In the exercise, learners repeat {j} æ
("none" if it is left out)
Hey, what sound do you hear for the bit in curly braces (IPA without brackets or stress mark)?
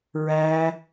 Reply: ɹ